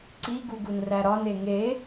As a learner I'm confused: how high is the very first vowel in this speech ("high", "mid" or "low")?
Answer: high